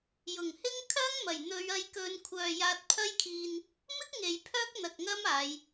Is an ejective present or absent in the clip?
absent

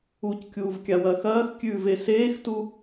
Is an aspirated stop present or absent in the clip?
absent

